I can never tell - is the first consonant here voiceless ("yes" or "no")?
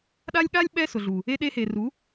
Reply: no